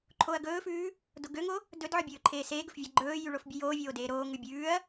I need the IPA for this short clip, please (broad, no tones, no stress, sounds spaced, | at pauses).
ǃʰ o ɐ̯ ɡ ɵː f ʉː | d o ɡ ø ŋ o | d ɵ d ʕ ɔ bʲ ɵː ǃʰ eː s eː ɡ ɵ f vʲ æ ɡ͡ǃ ɵː j y ɭ o f bʲ ɵ j oː vʲ oː d eː ɾ oː ŋ ʉ bʲ ʉː ɐ̯